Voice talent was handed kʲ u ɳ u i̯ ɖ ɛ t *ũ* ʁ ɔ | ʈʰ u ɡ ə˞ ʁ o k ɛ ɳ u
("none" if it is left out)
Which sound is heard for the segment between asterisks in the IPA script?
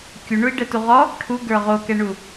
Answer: u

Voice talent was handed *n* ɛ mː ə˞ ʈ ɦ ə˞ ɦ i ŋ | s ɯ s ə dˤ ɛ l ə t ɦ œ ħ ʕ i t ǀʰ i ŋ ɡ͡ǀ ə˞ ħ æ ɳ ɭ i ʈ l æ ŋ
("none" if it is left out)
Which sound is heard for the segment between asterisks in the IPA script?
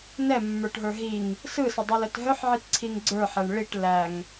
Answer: n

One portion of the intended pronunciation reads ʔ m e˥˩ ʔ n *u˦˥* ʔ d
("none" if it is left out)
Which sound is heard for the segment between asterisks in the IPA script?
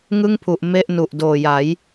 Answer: u˨˩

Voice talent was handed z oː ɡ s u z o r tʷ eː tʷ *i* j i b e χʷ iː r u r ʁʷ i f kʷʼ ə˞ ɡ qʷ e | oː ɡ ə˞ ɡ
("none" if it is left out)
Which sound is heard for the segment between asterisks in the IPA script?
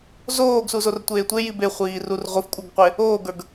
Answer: e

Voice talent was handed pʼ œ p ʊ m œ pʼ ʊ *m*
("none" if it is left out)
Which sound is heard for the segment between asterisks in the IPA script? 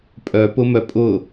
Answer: none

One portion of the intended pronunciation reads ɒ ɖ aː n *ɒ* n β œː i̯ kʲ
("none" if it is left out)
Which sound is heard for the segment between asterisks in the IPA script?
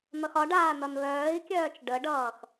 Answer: ʌ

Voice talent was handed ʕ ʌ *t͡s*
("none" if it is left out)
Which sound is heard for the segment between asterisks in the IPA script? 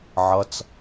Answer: t͡s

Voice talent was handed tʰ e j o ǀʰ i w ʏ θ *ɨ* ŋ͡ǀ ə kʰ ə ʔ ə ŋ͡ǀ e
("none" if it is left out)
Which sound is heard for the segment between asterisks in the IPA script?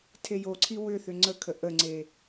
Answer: ʏ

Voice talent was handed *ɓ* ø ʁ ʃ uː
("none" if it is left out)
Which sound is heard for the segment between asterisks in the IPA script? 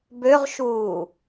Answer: b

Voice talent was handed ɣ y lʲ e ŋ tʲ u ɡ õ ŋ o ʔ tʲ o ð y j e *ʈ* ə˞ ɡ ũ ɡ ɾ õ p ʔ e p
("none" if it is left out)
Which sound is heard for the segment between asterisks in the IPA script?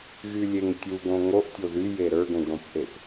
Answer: ɾ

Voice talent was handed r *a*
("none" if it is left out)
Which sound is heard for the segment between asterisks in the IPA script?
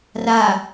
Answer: a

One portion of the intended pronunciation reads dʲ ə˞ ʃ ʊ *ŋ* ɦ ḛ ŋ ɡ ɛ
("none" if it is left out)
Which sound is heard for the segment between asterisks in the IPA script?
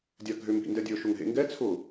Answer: ŋ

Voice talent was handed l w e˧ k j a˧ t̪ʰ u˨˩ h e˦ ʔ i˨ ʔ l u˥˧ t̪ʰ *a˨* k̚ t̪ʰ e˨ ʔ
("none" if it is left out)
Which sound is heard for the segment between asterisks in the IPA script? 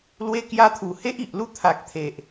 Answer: a˨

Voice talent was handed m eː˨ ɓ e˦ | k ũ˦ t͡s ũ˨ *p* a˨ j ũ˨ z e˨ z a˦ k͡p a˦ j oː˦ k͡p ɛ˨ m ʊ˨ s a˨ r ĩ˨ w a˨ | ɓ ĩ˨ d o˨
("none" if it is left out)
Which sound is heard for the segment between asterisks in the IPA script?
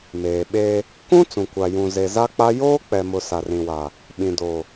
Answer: kʷ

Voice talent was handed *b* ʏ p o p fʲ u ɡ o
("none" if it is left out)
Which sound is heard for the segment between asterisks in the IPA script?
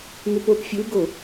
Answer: m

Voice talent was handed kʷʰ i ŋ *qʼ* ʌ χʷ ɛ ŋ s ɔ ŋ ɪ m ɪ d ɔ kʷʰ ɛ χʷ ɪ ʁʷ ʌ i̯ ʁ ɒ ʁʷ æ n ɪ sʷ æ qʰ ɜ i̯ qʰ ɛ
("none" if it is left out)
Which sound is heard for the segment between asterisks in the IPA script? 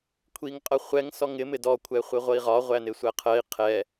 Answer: qʼ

